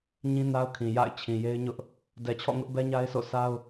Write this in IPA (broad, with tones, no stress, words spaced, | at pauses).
ɲĩ˦na˦ʊ̯kʰĩ˨ja̰˦˨ɪ̯ t͡ɕʰĩ˨je˦ɪ̯ɲʊ˦ʔ | dɛ˨t͡ɕʰɔ̰˦˨ŋʊ˦ʔbɛ˦ ɲa˦ɪ̯sʰo̰˦˨ sa˦ʊ̯